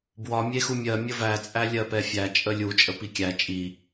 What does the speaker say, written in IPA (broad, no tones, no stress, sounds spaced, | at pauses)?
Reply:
b w ɒ mʲ e x u mʲ ɜ mʲ ə v æ t͡sʼ æ lʲ ɜ p ɛ fʲ æ t͡ʃʼ ə lʲ u t͡ʃʼ ə p i kʲ æ t͡ʃʼ i